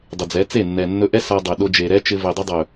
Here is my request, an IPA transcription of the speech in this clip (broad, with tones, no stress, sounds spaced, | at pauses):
dˤ ɪ˨ d͡z ɛ˨˦ t͡s e˦˨ nː ɛ˨ nː ɵ˧ ʔ ɛ˦ s a˧ dˤ ɛ˨ ɗ o˧ d͡ʒ e˨ ɾ ɛ˦ t͡ʃ ɪ˧ v e˨ dˤ ɪ˧ dˤ ɵ˨